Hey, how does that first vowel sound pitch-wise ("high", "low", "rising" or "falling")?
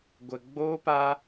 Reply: low